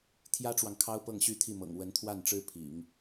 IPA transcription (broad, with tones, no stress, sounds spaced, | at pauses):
t̪ʰ j ä˥ ʈ͡ʂ w ɑ˨ ŋ kʰ ɑ˥ ʊ̯ p ɤ˥˩ ŋ ɕ y˥ t̪ʰ i˥˩ m ɤ̰˨˩ ŋ w ə˧˥ n t̪ʰ w a˥˩ n ʈ͡ʂ ɻ̩˥ pʰ ḭ˨˩˦ ŋ